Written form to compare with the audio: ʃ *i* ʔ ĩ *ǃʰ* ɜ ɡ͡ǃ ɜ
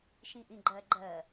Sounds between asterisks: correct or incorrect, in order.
incorrect: ĩ, incorrect: ɡ͡ǃ

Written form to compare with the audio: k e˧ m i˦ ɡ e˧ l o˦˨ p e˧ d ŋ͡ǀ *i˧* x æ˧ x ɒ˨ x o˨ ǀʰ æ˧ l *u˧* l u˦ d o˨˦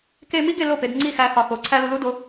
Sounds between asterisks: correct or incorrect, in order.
incorrect: i˦˨, correct

